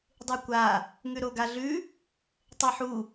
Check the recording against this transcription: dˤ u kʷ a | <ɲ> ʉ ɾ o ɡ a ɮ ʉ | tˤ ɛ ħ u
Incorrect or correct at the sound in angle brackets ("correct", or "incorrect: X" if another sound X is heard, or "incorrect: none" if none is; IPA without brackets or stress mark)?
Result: incorrect: ŋ